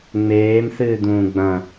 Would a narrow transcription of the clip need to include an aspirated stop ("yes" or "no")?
no